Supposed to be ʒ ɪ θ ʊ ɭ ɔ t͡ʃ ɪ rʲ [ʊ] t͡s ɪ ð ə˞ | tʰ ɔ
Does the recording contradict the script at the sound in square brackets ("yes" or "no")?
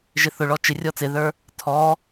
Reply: yes